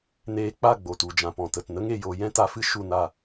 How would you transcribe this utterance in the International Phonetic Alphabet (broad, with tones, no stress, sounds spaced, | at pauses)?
n eː˧ k͡p a˦˨ ɡ͡b o˨ t u˨ d͡ʒ ã˨ p ɔ̃˨ t ə˨ t n ə˦ ŋ e˧ j o˧ j ɛ̃˦ t a˧ f ɨ˦ ʃ u˦˨ n a˦˨